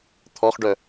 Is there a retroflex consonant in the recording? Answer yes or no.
yes